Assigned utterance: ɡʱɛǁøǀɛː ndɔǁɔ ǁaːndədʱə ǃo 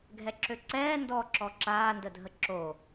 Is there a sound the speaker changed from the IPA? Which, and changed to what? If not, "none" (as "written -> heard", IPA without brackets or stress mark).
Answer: ǃ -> ǁ